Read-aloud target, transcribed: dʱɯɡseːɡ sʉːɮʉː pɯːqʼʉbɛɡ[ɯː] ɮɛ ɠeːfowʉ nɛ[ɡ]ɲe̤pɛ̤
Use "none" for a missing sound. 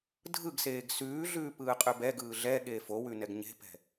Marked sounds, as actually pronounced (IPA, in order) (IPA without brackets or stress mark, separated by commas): ɯː, ɡ